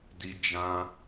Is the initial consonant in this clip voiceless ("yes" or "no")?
no